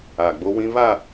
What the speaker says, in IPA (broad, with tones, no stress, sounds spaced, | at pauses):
a˨ ɡ͡b o˦ w ĩ˦ β a˦˨